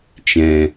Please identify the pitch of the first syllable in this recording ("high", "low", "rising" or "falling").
low